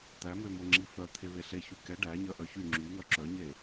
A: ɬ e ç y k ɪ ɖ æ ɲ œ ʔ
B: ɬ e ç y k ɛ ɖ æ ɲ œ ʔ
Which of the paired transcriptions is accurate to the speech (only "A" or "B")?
B